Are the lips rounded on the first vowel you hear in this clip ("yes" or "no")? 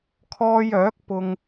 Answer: yes